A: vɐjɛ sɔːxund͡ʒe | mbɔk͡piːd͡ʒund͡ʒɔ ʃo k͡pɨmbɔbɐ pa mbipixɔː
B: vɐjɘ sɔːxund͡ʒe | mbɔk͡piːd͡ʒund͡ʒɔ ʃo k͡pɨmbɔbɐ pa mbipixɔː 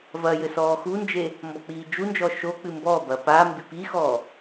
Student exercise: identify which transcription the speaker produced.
B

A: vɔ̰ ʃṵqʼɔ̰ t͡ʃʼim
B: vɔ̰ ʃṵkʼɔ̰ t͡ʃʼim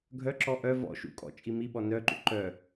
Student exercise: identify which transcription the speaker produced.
B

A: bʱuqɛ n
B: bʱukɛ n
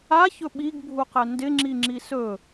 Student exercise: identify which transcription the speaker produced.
A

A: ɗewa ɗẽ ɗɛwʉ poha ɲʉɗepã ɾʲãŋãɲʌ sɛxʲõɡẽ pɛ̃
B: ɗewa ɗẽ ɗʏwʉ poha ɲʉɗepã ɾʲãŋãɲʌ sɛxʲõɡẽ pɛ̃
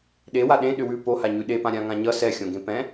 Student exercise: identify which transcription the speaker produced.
B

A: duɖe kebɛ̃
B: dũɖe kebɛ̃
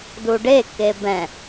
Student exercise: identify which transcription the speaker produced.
A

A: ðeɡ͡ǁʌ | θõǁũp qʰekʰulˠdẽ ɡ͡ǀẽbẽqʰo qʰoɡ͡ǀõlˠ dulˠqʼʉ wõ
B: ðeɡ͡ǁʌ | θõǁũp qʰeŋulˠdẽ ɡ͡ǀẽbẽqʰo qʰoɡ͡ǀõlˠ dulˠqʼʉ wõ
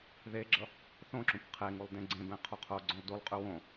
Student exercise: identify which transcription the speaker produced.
B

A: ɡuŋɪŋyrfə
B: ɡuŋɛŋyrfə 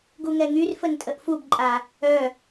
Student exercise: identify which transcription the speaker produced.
B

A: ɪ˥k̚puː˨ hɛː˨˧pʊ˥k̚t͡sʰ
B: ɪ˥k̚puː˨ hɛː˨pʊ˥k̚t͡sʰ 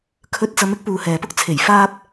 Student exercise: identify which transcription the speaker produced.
B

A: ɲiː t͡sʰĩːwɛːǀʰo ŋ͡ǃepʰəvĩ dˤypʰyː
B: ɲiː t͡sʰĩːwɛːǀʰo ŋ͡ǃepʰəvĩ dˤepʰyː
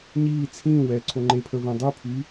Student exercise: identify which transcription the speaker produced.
A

